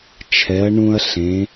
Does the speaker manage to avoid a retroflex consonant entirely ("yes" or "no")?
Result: no